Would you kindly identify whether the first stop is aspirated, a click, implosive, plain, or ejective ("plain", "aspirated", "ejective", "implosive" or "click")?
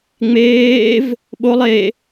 implosive